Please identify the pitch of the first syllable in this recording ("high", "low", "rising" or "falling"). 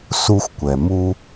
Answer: high